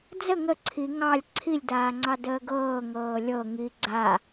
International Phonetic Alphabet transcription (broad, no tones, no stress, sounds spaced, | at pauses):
d͡z ə ŋ ə ǀʰ i ŋ ɑ lʲ ǀʰ i lʲ d aː ŋ͡ǀ ɑ d əː ɡ ɤː ŋ ɤː lʲ ɤ ŋ i ɡ͡ǀ a